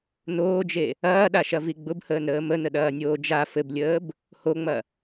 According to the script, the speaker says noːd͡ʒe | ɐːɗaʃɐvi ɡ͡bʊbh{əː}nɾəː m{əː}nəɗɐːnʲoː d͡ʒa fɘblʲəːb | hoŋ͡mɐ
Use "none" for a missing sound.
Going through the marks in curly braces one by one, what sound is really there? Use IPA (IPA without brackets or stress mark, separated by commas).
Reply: əː, ə